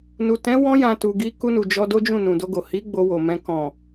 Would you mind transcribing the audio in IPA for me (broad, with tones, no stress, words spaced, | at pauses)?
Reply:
nu˨ tɛ̃˨˦ wɔ̃˧jã˨ tu˨ɡi˧ ku˧ nu˨d͡ʒɔ˧do˦d͡ʒũ˦˨ nũ˨do˧ɡo˨ hi˨˦ ɡ͡bo˧wo˨mɛ̃˧ kɔ̃˨